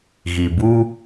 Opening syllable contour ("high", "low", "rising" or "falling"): low